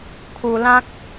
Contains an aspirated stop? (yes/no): yes